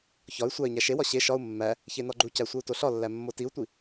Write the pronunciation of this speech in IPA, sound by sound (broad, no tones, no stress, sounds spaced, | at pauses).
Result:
ç ɒ y̯ sʷ æ i̯ ɲ æ ʃ e w ɒ ɕ e ʃ ɒ u̯ mː æ | ç e n ɒ ɡ͡ǃ u c æ sʷ e u̯ t o ɬ ɒ lː æ mː o t i u̯ tʷ i